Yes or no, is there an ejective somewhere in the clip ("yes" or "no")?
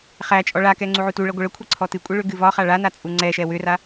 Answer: yes